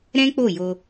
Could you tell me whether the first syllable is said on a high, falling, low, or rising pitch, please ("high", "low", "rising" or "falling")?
high